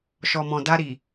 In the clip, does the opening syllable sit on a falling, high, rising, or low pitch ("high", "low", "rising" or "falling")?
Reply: low